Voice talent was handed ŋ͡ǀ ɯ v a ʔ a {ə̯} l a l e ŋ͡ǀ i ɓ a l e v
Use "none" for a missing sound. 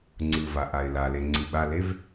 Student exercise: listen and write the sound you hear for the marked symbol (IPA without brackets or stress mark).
ɪ̯